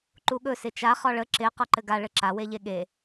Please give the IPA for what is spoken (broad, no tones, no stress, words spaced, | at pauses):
ǃuɠɵ sɪt͡ʃa χɒɭə ǁɪ qɒǃɘɡa ɭɘǁa weʎeɠe